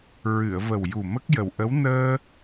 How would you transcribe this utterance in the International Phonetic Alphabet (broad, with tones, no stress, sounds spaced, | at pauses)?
ɹ ɨ˨˩˨ ə̯ v ə˨˩ w j u˨˩ m ə˦˥ k̚ j ə˨˩ w ʔ ə˧˥ w n əː˧